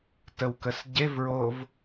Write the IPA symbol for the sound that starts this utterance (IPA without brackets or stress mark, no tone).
t